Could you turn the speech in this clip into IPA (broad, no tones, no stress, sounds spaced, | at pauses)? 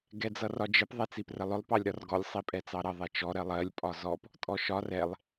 ɡ ɛ d͡z ʌ r ɒ d͡ʒ ɪ p ðˤ ɛ t͡s i p r ə lˠ ʊ lˠ p ɑ lʲ ɾ ɒ r ɡ ɔ lʲ sˤ i pʼ ɛ t͡s ɑ ɾ ʌ ðˤ ɛ t͡ʃ ɔ ɾ ɜ lˠ ɜ lʲ pʼ ɒ z ɔ p | tʼ ɔ ʃ ɒ r ɛ lˠ